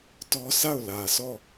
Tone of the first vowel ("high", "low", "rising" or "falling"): high